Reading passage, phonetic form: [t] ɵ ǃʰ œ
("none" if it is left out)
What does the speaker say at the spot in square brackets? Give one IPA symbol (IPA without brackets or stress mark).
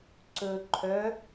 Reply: ǀ